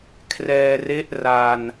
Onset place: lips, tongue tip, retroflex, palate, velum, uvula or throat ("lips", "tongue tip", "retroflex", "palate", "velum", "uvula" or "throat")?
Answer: velum